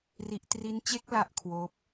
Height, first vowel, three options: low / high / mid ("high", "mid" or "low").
high